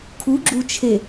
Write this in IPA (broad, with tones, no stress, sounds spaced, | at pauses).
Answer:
kʰ u˨˦ ɡ͡ǁ u˨ t͡ʃʰ e˨